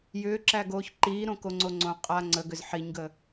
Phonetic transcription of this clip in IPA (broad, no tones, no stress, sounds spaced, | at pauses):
j ʏː ǁ æ ɡ oː ç ǃ iː ɾ õ k o ŋ͡ǀ o ŋ͡ǀ õ qʼ a ŋ͡ǀ ə ɡ ʏ z ħ i ɲ ɡ ə